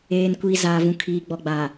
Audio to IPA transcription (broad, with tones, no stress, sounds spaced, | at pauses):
eː˨ n kʷ iː˨ z aː˨ v ũ˨ kʰ iː˨ ɡ͡b ɔ˨ ɡ͡b aː˨